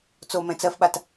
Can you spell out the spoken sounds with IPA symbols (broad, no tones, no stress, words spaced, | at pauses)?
t͡somɛ̃ t͡sɜfɓat